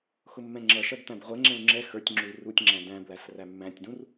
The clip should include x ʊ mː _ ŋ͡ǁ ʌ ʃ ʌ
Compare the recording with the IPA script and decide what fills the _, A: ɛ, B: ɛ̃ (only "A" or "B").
B